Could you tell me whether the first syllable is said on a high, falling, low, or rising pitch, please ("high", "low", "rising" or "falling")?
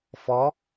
rising